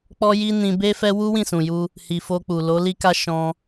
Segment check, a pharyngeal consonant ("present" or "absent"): absent